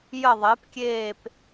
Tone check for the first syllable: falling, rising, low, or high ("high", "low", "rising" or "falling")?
falling